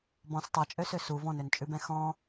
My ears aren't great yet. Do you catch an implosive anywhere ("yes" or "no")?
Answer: no